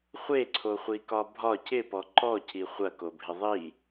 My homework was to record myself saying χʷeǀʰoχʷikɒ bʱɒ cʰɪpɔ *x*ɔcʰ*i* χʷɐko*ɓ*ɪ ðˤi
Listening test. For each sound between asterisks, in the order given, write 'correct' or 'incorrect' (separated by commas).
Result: incorrect, correct, incorrect